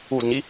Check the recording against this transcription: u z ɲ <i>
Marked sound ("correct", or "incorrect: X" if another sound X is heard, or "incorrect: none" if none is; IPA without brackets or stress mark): correct